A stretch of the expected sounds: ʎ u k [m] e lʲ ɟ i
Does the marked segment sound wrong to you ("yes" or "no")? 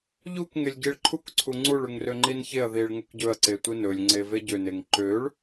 yes